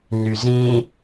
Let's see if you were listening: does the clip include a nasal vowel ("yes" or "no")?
yes